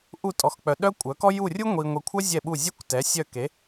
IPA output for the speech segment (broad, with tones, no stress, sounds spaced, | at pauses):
ʔ u˦˨ tʼ ɔ˨ x k͡p œ˨ ɗ œ˥ kʷʼ œ˨˥ k ɔ˥ j u˦˨ rʲ u˥ ŋʷ i˨ ŋʷ i˨ kʷʰ œ˥ zʲ ɛ˦˨ ɓ u˦˨ zʲ œ˥ kʷ t ɛ˨˥ sʲ œ˦˨ k e˨˥